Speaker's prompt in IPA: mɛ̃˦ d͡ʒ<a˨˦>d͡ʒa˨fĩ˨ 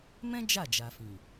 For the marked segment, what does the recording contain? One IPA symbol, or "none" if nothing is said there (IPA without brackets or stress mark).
a˦˨